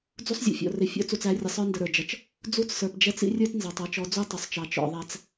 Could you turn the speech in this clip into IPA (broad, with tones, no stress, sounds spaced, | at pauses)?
d͡z u˦ sˤ zʲ ɔ̰˨ fʲ ɔ̰˨ r ɪ˨ fʲ ɔ̰˦ t͡s u˨ t͡s æ˨˦ rʲ ə˨ sˤ ə˞˦ n d ə˨ ɾ ə˞˨ d͡ʒ ʌ˨ t͡ʃ | d͡z u˦ t͡s s ə˞˨ p d͡ʒ ɛ˦ t͡s ḭ˦ rʲ ə˞˦ t n z ɑ˨ tˤ ʌ˦˨ t͡ʃ ɔ˨˦ d͡z u˦ tˤ ʊ˨ sˤ t͡ʃ ɑ˨ t͡ʃ ɔ̰˨ ðˤ æ˦ t͡s